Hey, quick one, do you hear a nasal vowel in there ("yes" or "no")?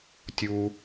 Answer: no